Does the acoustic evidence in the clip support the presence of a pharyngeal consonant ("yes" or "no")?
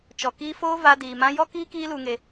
no